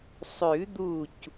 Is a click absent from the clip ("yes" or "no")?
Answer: yes